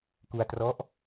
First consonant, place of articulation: velar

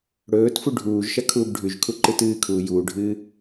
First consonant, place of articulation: retroflex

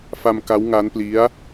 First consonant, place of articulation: labial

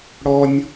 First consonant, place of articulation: retroflex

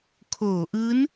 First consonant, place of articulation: velar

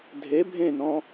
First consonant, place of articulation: alveolar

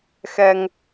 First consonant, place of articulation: velar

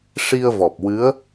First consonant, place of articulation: retroflex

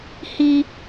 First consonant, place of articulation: glottal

